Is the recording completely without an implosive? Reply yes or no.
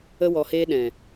no